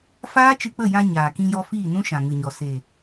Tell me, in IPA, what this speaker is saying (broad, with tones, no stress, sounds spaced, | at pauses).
f aː˦ t͡ʃ ɨ˧ k͡p ə˦˨ j ã˧ ɲ aː˨ k ĩ˧ j ɔ˧ f iː˦˨ n ũ˦ ʃ ã˨ ŋ ɨ˨ ɲ ɔ˨ s e˨